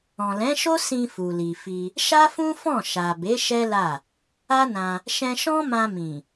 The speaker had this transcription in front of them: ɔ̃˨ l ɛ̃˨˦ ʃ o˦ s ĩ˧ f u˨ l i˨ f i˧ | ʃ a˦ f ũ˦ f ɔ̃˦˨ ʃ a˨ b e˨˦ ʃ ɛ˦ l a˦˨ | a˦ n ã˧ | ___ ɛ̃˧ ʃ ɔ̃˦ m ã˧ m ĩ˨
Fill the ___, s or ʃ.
ʃ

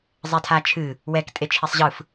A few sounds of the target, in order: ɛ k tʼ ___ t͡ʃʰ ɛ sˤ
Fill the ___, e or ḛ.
e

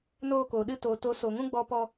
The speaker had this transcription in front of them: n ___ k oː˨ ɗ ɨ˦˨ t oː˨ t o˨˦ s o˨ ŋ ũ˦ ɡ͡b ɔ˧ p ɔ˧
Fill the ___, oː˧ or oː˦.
oː˧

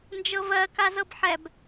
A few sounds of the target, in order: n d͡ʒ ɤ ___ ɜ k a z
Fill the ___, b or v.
v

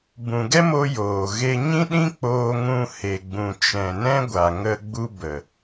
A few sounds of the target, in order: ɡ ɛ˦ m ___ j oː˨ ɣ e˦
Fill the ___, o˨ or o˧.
o˧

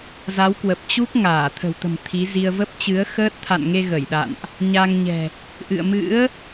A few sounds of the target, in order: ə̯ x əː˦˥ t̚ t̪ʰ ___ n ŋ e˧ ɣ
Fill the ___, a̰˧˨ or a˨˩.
a̰˧˨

